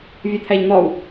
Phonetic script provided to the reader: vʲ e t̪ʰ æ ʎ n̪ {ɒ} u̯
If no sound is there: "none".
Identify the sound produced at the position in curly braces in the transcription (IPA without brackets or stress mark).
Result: ɒ